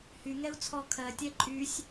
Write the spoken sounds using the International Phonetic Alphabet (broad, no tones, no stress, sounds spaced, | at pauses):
h y ŋ ɛ u̯ t͡sʰ ɔ kʰ ɜ tʲ ɛ ǃʼ y sʲ